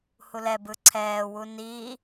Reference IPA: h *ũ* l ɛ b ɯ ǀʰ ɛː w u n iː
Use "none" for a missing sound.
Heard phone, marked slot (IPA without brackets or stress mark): u